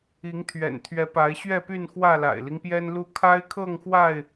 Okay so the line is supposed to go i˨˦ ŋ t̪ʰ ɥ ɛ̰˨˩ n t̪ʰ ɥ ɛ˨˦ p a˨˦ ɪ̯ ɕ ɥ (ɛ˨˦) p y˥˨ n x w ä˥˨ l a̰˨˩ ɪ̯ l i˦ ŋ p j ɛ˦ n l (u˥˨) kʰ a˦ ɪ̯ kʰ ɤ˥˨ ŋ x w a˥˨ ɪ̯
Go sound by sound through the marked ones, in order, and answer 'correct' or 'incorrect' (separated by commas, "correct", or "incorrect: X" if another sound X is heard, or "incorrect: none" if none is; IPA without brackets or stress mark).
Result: incorrect: ɛ˥˨, correct